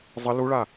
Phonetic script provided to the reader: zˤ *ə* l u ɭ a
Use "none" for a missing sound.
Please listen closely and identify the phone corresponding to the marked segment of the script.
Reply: ə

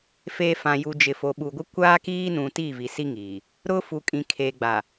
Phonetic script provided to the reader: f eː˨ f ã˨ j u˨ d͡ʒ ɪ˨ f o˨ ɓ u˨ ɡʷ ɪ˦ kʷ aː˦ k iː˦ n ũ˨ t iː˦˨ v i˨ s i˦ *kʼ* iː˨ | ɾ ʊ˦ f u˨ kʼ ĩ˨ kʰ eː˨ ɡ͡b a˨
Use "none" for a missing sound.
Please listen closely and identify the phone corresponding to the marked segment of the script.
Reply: ŋ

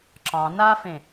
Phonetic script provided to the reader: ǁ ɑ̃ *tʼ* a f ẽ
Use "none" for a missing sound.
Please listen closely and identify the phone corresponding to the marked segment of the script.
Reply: n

